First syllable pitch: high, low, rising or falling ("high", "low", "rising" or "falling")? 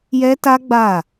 high